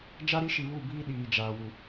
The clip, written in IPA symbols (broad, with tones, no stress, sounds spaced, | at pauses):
d͡ʒ a˦ ɾ i˦ ʃ i˨ β u˦˨ b iː˦ ɗ iː˨ d͡ʒ aː˨ w u˨